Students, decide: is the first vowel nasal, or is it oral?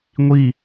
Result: oral